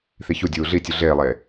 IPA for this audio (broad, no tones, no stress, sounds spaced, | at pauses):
θ i ç u dʲ uː ɮ i tʲ u ɮ eː lˠ eː